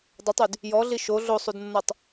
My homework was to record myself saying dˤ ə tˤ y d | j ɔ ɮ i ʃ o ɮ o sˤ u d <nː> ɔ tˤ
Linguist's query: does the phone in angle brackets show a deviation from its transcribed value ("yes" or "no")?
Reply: no